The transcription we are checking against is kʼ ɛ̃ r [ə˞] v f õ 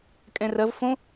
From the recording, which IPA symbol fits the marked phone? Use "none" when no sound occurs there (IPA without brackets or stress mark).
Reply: ɐ